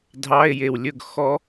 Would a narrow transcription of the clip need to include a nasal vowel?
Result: no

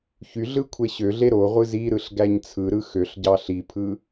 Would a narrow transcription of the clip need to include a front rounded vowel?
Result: yes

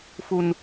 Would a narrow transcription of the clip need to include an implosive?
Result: no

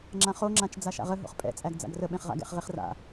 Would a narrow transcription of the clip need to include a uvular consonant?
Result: yes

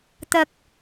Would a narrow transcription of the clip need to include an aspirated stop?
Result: no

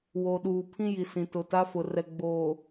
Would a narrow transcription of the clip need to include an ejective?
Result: no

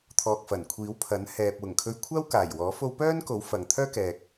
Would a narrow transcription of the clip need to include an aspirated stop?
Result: yes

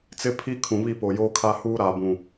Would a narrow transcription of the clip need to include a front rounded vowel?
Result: no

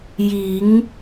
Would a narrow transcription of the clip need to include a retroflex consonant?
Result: no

